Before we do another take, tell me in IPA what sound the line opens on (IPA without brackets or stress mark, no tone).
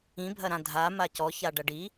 ĩ